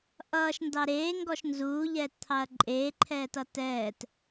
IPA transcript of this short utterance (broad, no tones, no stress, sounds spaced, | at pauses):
ʔ ʌː ʃ n d ɑ ɾ eː ŋ ɡ ɔ ʃ n z uː ʎ ɛː t t̪ʰ ɑ ɐ̯ ǃʼ eː ǃʰ ɛː t ʌ t ɛː t